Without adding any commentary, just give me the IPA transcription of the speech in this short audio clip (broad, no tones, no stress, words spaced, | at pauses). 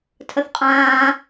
tʰəθqʼãː